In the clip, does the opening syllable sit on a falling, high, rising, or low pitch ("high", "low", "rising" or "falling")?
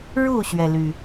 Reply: falling